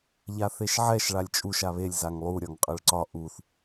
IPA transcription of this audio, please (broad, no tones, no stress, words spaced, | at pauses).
ʎaθeʃʕɛʃ ɭalʲt͡ʃʼuʃ aβelʲ zaŋlˠu ɾʲɒŋqʼəɭǀɒ ʔuθ